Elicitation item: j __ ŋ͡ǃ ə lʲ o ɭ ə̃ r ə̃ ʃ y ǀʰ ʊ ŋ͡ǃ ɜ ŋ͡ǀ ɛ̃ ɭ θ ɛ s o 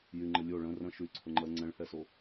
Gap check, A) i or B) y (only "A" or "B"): B